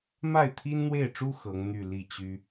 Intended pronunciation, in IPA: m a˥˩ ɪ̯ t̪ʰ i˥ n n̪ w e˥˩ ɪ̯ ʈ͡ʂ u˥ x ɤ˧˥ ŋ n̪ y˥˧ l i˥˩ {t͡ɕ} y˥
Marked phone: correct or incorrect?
correct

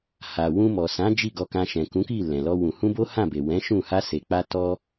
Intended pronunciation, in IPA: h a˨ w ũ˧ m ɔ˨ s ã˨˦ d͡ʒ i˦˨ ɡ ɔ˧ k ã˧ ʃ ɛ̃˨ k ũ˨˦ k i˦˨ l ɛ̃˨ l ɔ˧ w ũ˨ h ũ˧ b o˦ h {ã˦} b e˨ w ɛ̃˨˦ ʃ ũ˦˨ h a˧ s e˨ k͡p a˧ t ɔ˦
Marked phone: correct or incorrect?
incorrect: ã˦˨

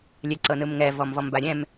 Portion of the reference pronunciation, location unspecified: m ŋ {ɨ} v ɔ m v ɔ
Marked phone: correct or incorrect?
incorrect: ɛ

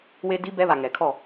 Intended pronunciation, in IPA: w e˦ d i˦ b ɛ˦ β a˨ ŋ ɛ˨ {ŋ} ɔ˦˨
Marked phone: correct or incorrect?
incorrect: kʰ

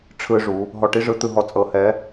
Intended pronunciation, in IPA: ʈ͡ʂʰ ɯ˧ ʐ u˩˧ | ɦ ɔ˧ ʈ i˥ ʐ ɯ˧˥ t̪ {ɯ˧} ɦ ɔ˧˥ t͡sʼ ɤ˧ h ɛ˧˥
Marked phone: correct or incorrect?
correct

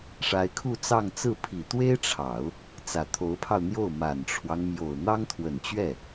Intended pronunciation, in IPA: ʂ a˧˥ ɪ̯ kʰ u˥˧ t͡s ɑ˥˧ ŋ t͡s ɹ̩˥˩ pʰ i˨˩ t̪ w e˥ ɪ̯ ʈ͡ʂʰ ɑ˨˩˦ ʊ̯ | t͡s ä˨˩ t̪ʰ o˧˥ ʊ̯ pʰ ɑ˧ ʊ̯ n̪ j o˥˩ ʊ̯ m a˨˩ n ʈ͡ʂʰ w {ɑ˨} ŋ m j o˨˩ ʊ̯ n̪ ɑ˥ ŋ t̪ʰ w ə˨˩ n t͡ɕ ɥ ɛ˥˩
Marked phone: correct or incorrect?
incorrect: ɑ˦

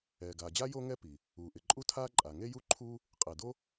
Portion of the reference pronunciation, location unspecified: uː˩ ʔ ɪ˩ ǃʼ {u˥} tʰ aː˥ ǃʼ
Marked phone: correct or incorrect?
correct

